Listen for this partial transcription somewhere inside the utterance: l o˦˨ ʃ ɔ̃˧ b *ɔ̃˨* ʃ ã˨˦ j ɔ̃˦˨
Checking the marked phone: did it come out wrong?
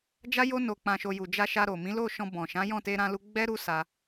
no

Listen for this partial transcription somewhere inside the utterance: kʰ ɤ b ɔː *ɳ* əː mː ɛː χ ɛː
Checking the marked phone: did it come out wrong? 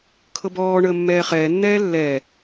no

